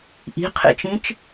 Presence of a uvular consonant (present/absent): present